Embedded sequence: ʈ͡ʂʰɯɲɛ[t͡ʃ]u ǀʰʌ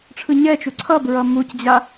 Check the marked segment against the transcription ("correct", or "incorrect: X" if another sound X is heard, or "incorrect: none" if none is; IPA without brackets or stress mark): correct